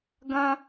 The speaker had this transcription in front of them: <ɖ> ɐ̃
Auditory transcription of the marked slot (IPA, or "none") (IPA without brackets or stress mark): ɡ